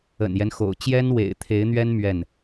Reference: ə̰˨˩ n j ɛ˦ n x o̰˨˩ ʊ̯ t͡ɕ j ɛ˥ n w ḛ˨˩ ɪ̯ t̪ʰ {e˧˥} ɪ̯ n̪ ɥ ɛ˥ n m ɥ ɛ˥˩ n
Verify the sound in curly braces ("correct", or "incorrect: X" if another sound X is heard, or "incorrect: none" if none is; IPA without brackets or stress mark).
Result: correct